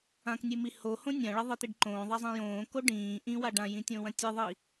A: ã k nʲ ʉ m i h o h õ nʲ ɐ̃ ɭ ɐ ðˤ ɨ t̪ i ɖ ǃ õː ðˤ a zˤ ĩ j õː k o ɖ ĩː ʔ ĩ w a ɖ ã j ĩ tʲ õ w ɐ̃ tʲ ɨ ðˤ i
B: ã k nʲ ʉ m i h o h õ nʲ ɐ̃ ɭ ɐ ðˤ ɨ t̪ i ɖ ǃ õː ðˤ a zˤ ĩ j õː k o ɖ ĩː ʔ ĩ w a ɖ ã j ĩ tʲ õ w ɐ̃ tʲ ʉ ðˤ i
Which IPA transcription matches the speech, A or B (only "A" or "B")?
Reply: A